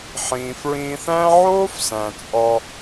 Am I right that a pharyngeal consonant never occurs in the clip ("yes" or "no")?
no